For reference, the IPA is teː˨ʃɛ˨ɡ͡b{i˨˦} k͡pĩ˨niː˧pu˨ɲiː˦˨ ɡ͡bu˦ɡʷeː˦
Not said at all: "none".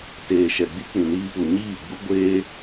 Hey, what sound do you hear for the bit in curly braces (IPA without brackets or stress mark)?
i˦